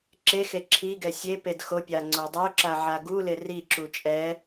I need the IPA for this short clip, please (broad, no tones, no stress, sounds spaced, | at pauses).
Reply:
ǁ e x e ǁʰ i ɡ ɛ sʲ e p e d x o pʲ a ŋ͡ǀ o dˤ ɪ ʊ̯ ǁ a ʕ a ɡ u l ɪ r i ǁ u t͡ʃʼ ɛ